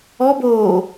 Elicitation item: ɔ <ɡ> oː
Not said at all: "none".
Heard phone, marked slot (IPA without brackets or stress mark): b